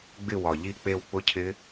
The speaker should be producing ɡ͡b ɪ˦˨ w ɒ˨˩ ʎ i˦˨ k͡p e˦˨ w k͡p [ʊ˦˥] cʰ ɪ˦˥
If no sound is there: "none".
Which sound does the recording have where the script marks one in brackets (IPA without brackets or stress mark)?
ʊ˦˥